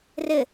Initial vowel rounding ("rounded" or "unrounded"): unrounded